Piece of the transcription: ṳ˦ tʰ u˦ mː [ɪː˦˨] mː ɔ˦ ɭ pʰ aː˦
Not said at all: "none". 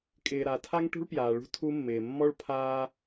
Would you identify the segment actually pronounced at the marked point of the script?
ɪː˨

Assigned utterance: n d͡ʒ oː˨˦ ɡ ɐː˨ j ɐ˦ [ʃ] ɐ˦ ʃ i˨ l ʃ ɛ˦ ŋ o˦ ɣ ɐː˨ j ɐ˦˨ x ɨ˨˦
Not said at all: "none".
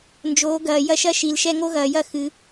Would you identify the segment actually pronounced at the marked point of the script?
ʃ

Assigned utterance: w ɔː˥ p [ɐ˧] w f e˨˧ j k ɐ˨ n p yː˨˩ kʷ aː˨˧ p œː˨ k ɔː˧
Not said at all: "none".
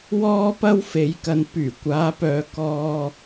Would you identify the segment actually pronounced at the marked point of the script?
ɐ˥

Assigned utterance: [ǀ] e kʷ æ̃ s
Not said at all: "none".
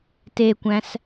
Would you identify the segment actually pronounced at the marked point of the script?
t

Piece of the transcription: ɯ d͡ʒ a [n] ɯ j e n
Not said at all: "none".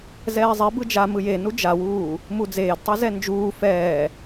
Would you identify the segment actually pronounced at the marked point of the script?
m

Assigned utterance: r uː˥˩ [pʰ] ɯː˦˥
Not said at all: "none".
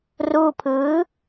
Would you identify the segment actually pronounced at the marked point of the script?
pʰ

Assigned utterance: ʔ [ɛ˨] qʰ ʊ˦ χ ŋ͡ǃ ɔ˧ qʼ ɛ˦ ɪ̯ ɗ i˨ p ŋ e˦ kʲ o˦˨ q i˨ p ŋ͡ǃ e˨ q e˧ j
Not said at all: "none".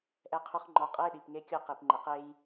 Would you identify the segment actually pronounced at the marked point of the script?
ɛ˦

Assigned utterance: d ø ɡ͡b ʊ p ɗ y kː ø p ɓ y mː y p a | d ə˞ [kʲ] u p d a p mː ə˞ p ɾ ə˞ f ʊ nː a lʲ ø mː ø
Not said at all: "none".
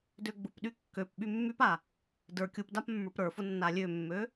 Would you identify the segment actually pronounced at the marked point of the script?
kʲ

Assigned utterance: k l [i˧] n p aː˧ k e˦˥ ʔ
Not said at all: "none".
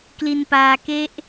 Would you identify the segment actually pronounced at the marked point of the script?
i˧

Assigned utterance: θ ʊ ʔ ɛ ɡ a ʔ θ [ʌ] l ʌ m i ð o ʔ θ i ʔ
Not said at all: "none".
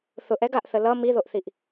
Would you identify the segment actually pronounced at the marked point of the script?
ə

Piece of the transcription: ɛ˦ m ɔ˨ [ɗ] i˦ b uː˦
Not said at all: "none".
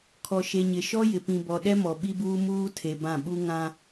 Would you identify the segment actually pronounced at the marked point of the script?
ɓ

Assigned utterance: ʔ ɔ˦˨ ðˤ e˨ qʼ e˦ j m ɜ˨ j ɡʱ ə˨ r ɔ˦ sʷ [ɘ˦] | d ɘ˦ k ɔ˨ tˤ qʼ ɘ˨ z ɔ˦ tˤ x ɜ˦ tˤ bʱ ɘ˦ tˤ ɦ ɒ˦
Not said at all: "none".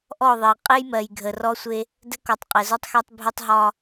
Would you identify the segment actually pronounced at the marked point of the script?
e˦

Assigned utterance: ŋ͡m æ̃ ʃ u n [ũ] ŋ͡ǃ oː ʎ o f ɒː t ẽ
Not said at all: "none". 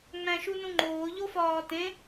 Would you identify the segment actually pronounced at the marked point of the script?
ũ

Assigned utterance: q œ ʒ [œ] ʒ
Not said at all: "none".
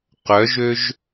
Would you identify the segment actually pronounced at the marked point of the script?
ø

